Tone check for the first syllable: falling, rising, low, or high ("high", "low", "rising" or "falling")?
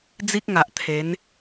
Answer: high